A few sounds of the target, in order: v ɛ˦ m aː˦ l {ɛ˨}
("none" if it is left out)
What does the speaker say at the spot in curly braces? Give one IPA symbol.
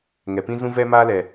ɛ˨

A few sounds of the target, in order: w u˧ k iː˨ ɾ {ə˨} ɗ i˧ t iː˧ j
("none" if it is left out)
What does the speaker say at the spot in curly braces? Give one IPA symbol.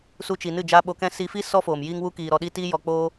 ɔ˨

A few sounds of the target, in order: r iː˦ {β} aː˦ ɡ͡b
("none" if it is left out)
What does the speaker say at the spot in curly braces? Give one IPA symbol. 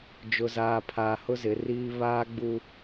β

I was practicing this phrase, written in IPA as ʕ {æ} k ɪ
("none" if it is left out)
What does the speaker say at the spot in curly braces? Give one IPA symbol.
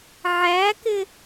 æ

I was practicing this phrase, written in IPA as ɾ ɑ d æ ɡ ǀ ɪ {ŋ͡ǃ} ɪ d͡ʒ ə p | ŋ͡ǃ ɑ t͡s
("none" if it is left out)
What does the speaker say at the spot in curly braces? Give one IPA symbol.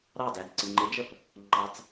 ŋ͡ǃ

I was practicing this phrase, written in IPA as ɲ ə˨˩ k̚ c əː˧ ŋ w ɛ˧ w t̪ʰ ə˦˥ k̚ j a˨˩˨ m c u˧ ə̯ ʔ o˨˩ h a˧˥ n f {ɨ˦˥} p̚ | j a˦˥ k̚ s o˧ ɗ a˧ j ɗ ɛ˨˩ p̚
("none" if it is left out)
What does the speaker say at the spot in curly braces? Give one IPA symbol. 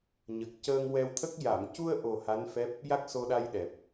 ɛ˦˥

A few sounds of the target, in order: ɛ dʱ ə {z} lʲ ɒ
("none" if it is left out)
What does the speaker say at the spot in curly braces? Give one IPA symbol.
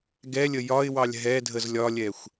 z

